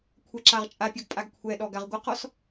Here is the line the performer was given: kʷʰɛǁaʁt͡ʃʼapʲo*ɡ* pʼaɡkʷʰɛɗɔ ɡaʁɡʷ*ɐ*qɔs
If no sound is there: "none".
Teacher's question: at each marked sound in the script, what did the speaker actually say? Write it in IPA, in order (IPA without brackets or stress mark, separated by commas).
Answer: ɡ, ɐ